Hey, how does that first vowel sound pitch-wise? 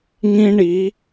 high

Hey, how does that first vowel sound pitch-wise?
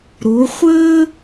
rising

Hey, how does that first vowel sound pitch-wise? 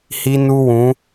high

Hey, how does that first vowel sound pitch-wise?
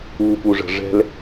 low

